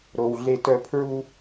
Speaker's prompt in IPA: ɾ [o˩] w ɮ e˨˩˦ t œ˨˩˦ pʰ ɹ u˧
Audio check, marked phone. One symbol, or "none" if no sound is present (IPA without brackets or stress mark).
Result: o˩